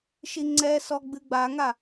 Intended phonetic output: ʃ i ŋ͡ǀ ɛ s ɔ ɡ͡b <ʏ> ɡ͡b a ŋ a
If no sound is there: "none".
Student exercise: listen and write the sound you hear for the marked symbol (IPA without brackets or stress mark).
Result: ɨ